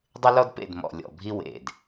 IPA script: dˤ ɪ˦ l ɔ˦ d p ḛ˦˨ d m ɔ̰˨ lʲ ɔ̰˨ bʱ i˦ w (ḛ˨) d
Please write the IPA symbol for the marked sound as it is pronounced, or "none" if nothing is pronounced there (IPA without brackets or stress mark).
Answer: ḛ˨